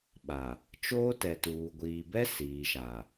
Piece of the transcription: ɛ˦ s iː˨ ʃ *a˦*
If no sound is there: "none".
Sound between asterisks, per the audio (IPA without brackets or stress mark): a˨